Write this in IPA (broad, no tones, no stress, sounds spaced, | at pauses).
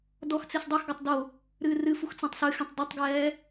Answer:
d ɔ x t͡s e s dˤ ɛ x ɡ ʌ tˤ d o | ɾ ɨː r ɨ f u x t͡s ɛ̃ tˤ s ɨ x ẽ tˤ d ɨ tˤ ɡ ɛː